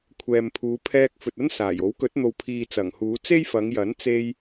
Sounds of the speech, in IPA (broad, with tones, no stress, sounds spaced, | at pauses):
kʷʰ ɛː˨ m pʰ uː˨˧ pʰ ɛː˧ k̚ f ɵ˨ t̚ ɐ˥ n s aː˨˩ j o˨˥ w k ɵ˨˥ t̚ n̪ o˨ w pʰ iː˨ t͡s ɐ˨˩ ŋ h uː˨˧ t͡s e˥ j f ɐ˨˧ ŋ j ɐ˨˥ n t͡s e˧ j